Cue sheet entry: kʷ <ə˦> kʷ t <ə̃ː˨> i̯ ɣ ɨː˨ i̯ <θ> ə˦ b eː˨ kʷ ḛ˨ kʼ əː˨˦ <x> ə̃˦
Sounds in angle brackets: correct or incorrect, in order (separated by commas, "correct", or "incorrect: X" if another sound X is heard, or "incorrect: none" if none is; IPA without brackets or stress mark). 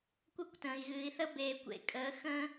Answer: correct, correct, correct, correct